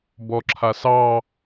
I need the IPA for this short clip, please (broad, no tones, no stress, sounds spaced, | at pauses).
b ɔ ǁʰ a s ɑ